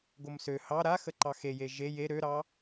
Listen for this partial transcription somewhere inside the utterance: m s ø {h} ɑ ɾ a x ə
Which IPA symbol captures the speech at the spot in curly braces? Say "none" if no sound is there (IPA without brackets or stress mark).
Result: h